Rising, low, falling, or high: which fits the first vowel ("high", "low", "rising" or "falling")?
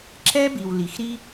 high